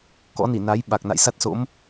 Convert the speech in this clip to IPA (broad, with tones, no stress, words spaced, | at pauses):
kɔ̰˧˥ni˧˩na˨˦j ɓa˨˩k̚na̰˧˨jsa˦˥t̚so̰˧˥m